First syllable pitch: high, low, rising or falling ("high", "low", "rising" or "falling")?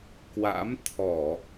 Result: rising